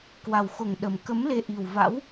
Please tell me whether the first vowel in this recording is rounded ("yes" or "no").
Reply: no